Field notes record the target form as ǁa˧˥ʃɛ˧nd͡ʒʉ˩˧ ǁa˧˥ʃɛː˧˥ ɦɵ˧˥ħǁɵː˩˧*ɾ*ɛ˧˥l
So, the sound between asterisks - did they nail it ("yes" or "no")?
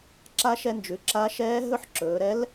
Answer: yes